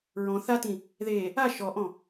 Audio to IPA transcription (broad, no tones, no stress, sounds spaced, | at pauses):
ɹ ɔ̃ θ a t ĩ | ð e | a ʃ ɔ ʔ ɔ̃